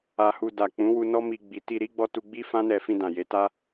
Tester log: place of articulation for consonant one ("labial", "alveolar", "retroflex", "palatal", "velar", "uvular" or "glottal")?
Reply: glottal